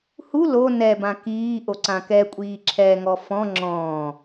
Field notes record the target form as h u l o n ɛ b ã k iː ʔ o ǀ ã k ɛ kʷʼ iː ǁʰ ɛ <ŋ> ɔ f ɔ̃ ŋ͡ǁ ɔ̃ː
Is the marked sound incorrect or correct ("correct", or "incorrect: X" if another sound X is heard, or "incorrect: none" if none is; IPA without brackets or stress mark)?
correct